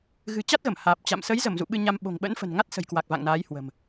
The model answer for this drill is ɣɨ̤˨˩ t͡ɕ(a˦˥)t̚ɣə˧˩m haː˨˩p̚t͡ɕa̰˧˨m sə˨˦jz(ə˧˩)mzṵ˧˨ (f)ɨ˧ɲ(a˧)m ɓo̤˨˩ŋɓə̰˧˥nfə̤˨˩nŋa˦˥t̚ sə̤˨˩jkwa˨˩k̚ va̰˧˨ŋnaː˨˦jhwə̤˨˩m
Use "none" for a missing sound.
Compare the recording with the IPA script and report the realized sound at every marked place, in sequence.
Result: a˦˥, ə˧˩, ɓ, a˧

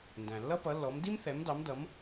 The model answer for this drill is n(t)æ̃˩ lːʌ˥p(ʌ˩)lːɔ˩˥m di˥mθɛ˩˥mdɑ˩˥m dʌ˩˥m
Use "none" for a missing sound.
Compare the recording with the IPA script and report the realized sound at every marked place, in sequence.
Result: d, ʌ˩˥

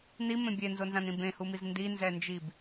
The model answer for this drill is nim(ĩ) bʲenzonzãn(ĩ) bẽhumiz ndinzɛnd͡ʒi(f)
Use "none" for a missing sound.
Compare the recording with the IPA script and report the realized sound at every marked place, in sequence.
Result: ẽ, ĩ, b

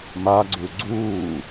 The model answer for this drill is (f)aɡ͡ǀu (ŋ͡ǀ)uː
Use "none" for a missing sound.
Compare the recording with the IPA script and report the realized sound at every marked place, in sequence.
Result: m, ɡ͡ǀ

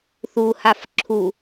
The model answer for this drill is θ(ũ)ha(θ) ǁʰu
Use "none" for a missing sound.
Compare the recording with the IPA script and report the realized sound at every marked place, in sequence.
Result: u, f

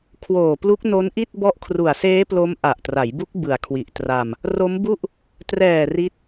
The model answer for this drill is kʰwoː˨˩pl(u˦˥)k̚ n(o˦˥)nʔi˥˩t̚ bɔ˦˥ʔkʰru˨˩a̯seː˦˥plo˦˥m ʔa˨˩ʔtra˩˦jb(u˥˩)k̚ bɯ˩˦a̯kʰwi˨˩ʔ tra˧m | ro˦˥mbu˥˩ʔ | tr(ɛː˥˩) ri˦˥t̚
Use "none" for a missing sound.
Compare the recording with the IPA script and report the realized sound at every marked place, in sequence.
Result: u˦˥, o˦˥, u˦˥, ɛː˨˩

